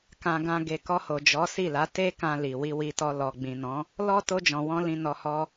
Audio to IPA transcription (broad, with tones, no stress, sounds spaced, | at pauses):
k ã˧ ɡ ã˧ ɡ e˨ k ɔ˧ h o˨ d͡ʒ ɔ˨˦ s i˦˨ l a˨˦ t e˦ k ã˧ l i˨ w i˧ w i˧ t ɔ˧ l ɔ˨ ɡ͡b ĩ˨ n ɔ̃˨˦ | l ɔ˦ t o˧ d͡ʒ ɔ̃˨ w ɔ̃˧ l ĩ˧ n ɔ˧ h ɔ˦